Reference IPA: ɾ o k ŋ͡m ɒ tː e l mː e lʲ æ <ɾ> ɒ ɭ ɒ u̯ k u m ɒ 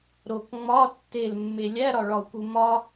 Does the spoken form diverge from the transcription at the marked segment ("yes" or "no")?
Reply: no